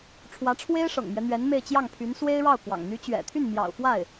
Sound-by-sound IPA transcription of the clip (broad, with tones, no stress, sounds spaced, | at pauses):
ʈ͡ʂʰ w ä˧˥ ʈ͡ʂʰ w e˥ ɪ̯ ʂ ɤ̰˨˩ ŋ m ɥ ɛ˦ n̪ ɥ ɛ˧˥ n m e˥˧ ɪ̯ t͡ɕ j ɑ˥˩ ŋ pʰ y˧˥ n s w e˥ ɪ̯ ɻ ɑ˥˩ ʊ̯ k w ɑ̰˨˩ ŋ n̪ y˧˥ t͡ɕ ɥ ɛ̰˨˩ t̪ʰ y˥˩ n m j ɑ̰˨˩ ʊ̯ f w a˥˩ ɪ̯